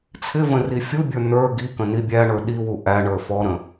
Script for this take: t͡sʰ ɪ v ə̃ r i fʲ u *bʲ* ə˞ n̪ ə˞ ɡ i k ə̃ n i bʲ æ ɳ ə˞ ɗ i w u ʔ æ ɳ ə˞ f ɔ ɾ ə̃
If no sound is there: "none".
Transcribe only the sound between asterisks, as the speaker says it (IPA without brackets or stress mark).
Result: bʲ